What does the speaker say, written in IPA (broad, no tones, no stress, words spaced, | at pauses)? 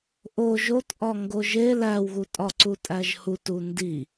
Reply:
ʔo ʒotʔɒ ŋɡoʒe læwɣu tʼɒǀutʼæʒhut undi